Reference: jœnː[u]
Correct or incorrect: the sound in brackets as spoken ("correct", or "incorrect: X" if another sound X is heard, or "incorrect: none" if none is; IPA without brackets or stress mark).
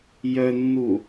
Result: correct